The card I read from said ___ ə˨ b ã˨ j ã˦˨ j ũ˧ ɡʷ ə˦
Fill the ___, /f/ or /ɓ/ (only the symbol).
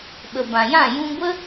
ɓ